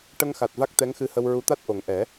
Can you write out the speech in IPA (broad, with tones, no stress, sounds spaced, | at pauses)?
ʈ ə˧ ŋ x a˨˩ t̚ v a˦˥ k̚ t̪ ɛ˧˥ ŋ x ɨ˧ h ə˧ w ɹ u˧˥ t̪ a˦˥ t̚ ʔ o˨˩ ŋ ʔ ɛ˨˩˦